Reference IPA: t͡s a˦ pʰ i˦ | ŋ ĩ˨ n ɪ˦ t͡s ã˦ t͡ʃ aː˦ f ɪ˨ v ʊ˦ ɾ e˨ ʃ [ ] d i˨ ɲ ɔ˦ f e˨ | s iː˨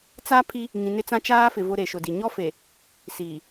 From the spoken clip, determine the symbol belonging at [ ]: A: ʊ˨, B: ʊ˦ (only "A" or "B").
A